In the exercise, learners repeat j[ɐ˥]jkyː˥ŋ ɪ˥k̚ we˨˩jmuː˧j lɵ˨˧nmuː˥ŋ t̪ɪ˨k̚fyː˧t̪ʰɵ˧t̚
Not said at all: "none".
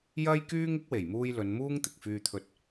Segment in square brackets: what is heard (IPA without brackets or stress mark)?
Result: ɐ˥